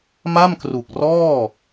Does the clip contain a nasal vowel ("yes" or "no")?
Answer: no